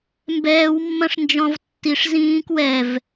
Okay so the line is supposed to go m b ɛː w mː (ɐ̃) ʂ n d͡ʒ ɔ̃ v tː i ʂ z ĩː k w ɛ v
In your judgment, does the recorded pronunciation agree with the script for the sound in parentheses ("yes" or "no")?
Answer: yes